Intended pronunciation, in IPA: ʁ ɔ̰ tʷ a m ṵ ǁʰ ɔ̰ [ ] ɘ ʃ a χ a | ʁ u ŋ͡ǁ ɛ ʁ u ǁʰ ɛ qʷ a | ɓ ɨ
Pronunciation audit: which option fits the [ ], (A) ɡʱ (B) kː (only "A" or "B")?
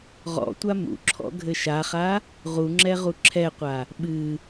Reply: A